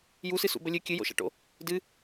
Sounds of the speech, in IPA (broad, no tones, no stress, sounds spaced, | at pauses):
j u s ɨ s ṵ b ə lʲ ɨ kʲ ɨ j o̰ ʃ a̰ ʈ o̰ | d ɨ